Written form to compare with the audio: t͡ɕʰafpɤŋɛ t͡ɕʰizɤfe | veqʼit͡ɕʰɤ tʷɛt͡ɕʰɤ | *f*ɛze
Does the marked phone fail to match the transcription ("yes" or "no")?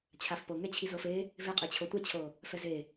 no